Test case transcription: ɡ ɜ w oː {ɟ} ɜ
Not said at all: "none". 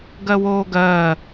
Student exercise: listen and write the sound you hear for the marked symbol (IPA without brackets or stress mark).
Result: ɡ